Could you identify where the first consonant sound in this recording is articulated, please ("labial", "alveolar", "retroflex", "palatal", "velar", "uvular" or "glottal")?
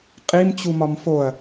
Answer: uvular